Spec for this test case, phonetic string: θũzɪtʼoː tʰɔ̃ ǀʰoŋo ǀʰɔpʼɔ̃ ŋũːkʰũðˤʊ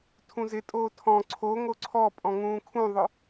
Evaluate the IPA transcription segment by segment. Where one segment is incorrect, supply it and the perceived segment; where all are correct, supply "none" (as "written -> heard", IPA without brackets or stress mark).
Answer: θ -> tʰ